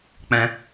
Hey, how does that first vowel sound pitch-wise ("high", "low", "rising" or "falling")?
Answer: high